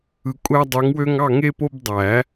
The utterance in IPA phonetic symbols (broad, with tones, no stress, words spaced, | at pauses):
ɯ˨˩˦kʷʼæ˦dˤø˨˥ŋwø˦ŋ ɑ˥˨ ŋe˦po˦bdˤæ˨˩˦